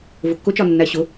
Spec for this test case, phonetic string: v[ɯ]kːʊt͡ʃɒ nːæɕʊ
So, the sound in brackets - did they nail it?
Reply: no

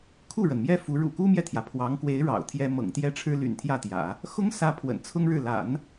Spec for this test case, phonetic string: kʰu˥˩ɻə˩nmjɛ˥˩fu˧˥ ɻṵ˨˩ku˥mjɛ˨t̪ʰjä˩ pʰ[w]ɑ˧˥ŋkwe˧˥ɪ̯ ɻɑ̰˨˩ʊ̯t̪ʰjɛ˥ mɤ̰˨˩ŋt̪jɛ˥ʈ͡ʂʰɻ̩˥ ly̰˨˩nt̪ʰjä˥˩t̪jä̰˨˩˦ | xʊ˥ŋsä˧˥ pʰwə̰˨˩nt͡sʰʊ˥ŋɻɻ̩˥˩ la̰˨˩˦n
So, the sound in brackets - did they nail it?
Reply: yes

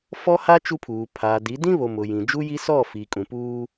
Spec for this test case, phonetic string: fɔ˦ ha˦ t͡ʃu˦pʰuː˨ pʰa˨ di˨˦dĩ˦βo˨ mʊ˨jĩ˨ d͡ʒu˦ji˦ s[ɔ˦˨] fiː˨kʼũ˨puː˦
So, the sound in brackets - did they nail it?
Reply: yes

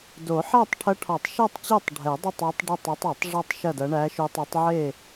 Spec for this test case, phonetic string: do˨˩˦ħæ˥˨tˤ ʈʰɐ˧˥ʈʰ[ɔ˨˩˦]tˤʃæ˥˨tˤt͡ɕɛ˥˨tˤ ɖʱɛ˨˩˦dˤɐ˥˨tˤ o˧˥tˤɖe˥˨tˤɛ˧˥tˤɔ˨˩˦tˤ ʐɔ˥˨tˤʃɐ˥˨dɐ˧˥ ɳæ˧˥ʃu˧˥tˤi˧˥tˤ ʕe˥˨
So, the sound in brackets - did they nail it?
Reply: yes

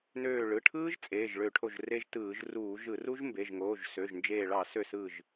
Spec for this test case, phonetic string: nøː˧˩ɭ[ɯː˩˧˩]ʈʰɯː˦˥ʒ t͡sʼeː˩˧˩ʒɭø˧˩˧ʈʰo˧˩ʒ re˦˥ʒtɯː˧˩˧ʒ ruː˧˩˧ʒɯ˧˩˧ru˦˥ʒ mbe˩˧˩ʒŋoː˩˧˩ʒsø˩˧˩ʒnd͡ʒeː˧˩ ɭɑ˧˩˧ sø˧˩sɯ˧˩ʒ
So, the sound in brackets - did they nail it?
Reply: no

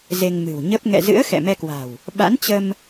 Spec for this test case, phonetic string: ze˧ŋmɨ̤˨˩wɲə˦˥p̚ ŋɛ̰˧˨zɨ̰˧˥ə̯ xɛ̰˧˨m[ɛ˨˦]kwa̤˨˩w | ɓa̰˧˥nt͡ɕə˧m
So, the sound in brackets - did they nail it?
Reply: no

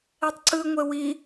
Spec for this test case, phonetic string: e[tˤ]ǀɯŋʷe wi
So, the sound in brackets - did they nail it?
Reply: yes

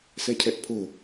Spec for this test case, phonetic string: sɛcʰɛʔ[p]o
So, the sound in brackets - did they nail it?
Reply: no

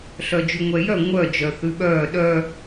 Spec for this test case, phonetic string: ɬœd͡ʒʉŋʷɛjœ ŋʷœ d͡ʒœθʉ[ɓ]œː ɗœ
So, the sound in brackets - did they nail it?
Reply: yes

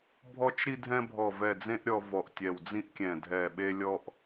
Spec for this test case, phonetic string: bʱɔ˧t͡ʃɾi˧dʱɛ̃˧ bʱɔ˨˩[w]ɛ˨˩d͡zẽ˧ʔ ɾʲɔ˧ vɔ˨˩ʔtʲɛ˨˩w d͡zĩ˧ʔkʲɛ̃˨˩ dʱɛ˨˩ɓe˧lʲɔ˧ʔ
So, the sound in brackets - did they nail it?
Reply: no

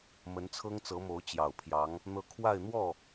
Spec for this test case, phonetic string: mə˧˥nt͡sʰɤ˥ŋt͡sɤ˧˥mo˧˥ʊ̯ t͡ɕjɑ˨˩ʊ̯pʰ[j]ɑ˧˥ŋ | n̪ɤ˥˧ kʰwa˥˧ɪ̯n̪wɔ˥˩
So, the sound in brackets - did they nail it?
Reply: yes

